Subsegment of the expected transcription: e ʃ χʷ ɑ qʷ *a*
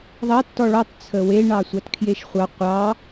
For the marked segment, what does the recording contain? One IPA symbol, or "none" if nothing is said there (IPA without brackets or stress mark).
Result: ɑ